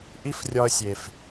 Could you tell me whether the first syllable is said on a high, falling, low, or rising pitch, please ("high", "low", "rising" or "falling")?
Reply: high